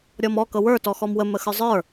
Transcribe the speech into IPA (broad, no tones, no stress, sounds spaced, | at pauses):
ɾʲ ɔ m ɔ k ɤ w ə˞ t ɔ x ɔ m w ə m ə x ə˞ zˤ ə˞